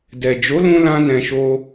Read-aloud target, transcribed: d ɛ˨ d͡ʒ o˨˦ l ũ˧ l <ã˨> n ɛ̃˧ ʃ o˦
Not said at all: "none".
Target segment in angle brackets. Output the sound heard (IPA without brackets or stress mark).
ã˦